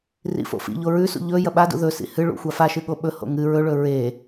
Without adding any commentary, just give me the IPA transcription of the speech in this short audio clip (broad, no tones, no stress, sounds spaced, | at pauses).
r ḭ f o̰ f ḭ ʎ o ɹ ʉ s ṵ ʎ ɵ j ɐ ɓ a d ṵ ð ɵ s ḭ h ɨ ɭ ṵ xʷ a f a ʃ ɨ ɠ o ɓ ɵ h o̰ ŋ ɨ ɹ ɵ ɭ ɵ ɹ e